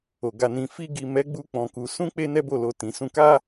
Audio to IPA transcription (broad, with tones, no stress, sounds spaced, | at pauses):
o˨ ɡ a˧ n ĩ˧ f i˧ ɡ i˨ m ɛ˨˦ ɡ͡b u˧ k͡p ɔ̃˧ k u˧ s ũ˦ k͡p e˦ n ɛ˦ b o˦˨ l o˧ t ĩ˨ s ũ˧ k a˦